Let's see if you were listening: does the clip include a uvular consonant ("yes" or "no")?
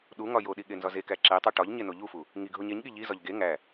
no